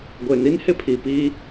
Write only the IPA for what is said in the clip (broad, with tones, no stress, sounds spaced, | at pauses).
ɡʷ e˨ n i˦ n h ɪ˦ pʰ i˨ p iː˦